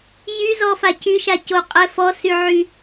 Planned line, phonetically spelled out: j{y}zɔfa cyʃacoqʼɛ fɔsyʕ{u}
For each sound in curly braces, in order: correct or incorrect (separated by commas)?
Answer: correct, incorrect